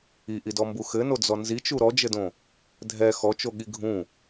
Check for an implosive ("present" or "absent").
present